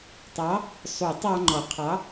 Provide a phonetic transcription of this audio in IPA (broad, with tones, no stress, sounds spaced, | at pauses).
tˤ ɑ˨˥ | sˤ u˨˩˦ tˤ ɑ˧ ŋ͡ǃ ɔ˨˩˦ qʰ ɑ˨˥